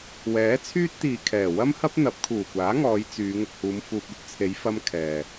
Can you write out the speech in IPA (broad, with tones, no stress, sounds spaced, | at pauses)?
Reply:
w ɛː˨˥ t͡sʰ yː˥ t̚ t̪ iː˨ kʰ ɛː˨˩ w ɐ˥ m h ɐ˥ p̚ n̪ ɐ˨˥ p̚ kʰ uː˨˩ kʷ aː˨˥ ŋ ɔː˨˧ j t͡s yː˨˧ ŋ ʊ˨ k̚ h uː˨˧ m f uː˧ p̚ ɵ˧ t̚ t͡sʰ e˨˧ j f ɐ˧ m kʰ ɛː˨